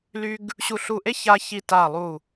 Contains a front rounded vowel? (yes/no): yes